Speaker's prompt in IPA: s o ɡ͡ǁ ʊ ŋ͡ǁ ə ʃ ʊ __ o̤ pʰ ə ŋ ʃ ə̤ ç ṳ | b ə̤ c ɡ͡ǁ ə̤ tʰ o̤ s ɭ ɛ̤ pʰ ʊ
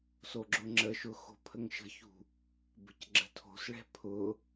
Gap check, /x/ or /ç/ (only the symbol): x